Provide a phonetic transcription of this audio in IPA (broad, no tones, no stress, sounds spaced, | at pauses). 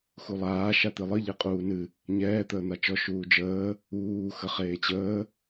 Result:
x u lˠ aː ʃ a t̪ ɨ lˠ ɨ ʎ e qʼ uː n ɨ | ɲ ɛː t̪ əː n̪ a t͡ʃ ɔ ʃ uː d͡ʒ əː | uː x ə χ eː t͡ɕ əː